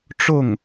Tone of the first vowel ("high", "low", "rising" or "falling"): falling